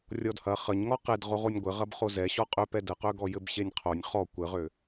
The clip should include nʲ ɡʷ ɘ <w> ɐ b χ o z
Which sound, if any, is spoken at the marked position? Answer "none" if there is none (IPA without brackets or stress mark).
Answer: ʁ